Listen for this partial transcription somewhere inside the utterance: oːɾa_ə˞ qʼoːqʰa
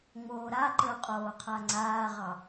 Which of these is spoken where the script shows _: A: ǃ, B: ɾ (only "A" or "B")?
A